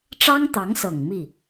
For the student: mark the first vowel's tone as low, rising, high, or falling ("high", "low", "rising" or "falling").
high